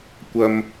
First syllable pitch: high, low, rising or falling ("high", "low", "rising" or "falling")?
low